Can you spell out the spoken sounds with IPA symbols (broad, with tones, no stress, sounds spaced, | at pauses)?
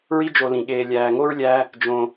ɹ i˦ d͡ʒ o˨ l ĩ˩ ɠ eː˨ lʲ æː˨ ŋ o˥ ɹ lʲ æ˦ | d͡ʒ õ˨